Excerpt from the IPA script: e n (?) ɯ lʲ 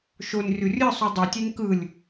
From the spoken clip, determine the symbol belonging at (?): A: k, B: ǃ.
A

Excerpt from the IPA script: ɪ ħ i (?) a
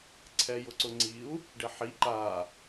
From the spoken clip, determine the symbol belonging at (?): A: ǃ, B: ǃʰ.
A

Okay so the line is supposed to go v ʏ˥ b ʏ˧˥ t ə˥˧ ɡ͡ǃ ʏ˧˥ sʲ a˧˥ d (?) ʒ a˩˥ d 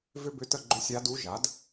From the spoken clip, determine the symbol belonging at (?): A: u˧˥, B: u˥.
A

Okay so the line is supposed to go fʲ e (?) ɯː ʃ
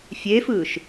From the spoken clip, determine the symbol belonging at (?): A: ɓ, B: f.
B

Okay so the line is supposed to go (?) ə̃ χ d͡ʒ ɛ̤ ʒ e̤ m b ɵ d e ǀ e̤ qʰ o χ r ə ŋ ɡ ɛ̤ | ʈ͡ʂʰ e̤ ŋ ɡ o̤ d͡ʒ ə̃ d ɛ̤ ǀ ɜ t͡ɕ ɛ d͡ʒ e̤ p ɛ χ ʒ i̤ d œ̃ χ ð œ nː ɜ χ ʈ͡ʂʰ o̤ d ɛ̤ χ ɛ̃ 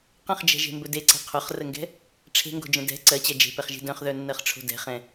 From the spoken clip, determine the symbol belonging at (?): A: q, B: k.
A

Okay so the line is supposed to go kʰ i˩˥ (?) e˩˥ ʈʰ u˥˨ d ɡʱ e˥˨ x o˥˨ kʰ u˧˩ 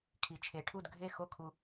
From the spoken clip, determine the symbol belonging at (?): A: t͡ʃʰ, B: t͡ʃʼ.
A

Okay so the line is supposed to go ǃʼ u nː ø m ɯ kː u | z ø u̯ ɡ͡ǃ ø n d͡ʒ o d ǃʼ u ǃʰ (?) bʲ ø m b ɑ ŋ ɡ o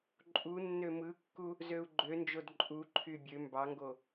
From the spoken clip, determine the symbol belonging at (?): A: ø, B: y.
B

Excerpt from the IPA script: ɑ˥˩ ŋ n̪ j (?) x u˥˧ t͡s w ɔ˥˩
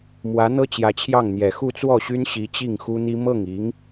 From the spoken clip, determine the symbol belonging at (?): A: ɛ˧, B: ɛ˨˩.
B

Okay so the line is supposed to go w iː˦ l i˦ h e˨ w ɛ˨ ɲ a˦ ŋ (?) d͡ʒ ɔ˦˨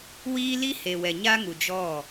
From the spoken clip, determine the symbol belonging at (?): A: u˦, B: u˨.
B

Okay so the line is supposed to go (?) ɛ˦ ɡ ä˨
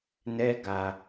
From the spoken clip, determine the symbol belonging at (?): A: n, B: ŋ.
A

